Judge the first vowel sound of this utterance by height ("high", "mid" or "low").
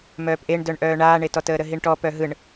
mid